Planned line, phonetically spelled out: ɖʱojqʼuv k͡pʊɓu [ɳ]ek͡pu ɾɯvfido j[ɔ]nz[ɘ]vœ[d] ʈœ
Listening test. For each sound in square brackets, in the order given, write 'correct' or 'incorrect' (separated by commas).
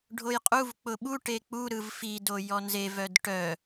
incorrect, correct, incorrect, correct